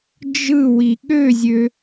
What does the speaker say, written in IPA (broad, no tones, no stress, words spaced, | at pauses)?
d͡ʒɯwi ɠøzʲø